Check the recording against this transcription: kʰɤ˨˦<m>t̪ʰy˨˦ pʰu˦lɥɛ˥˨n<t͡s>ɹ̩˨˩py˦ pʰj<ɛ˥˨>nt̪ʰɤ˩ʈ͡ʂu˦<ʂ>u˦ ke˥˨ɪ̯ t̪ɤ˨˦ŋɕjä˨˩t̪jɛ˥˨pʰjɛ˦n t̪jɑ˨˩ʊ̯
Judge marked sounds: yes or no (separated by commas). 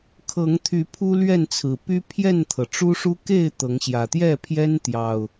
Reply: no, no, yes, yes